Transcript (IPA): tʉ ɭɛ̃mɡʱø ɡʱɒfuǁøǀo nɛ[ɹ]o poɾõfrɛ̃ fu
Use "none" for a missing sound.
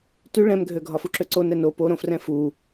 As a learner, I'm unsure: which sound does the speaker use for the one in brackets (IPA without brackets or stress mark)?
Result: n